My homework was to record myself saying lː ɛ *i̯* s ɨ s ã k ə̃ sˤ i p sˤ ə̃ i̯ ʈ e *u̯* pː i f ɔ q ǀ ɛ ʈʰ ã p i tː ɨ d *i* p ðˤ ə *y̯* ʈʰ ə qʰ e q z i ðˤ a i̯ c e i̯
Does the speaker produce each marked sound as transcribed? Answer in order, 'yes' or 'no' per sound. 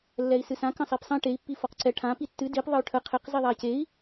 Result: yes, no, yes, yes

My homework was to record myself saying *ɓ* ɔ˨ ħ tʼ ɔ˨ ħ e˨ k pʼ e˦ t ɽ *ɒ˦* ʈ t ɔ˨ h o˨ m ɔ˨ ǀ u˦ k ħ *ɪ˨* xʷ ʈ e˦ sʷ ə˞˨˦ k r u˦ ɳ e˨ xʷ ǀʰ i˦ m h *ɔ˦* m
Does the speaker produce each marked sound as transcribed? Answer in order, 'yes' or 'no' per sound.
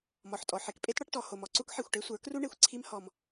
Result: no, yes, no, yes

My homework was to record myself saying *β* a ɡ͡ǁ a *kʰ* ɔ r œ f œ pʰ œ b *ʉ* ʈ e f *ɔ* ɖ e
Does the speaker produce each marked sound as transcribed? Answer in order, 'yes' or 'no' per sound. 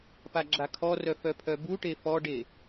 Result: no, yes, no, yes

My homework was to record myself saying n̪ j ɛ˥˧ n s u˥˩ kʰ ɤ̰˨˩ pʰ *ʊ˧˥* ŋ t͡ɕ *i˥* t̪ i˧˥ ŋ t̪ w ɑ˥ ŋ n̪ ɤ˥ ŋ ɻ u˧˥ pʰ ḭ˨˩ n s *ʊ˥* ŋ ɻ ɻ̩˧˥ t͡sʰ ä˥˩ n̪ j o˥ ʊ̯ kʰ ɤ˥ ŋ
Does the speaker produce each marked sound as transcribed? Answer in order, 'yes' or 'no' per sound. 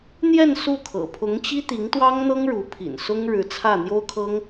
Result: yes, yes, yes

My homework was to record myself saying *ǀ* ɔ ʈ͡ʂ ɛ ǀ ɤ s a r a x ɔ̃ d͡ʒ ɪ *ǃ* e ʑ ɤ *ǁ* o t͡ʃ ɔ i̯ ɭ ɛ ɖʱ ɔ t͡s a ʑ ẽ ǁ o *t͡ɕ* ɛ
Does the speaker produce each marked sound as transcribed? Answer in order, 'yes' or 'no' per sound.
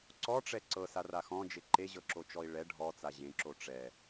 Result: yes, yes, yes, no

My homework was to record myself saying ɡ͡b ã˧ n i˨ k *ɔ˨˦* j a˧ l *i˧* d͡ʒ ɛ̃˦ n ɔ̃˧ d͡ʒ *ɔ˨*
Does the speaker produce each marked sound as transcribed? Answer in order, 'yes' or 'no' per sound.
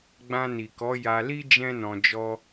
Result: yes, no, no

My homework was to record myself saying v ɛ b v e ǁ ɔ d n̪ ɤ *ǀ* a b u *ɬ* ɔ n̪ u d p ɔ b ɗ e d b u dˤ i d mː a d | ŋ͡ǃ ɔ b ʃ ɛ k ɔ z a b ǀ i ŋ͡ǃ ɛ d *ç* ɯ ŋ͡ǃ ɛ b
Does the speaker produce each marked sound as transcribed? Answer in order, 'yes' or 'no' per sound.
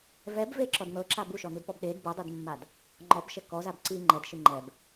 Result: no, no, no

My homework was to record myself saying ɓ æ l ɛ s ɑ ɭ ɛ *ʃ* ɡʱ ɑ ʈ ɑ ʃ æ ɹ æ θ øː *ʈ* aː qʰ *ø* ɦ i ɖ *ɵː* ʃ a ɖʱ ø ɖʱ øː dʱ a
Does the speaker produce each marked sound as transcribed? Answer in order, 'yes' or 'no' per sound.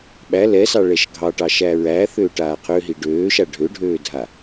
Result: yes, yes, yes, no

